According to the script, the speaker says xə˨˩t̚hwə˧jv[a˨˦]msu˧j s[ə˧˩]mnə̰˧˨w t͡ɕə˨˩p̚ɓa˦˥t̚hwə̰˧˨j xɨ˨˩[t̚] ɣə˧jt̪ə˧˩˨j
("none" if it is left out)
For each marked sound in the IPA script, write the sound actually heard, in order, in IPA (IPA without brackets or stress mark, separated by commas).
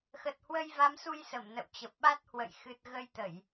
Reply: a˨˦, ə˧˩, t̚